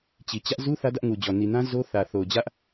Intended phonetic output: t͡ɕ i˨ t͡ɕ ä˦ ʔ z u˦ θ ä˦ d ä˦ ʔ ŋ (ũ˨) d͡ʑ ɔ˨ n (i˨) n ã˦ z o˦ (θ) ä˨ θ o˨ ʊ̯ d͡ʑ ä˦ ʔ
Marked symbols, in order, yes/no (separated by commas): no, yes, yes